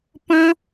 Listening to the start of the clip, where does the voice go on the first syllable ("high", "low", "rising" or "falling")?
high